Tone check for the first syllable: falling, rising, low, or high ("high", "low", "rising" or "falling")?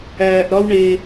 low